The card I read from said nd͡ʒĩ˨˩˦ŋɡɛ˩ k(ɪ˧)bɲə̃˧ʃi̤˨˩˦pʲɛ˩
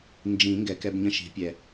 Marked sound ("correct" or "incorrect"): incorrect